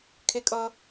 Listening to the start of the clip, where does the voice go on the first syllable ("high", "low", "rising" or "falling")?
high